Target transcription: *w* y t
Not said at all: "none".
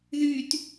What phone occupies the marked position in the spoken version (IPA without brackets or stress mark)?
ð